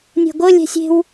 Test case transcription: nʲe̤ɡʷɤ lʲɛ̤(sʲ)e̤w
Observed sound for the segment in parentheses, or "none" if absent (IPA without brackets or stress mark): sʲ